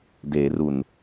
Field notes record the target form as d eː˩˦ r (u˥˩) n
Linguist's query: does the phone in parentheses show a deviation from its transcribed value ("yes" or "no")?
yes